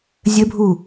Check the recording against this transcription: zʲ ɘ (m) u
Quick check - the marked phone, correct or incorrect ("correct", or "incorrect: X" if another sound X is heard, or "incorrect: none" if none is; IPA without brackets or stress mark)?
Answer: incorrect: bʱ